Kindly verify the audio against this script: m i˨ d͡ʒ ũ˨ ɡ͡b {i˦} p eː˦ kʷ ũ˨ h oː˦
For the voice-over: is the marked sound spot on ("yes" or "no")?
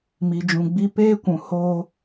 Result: yes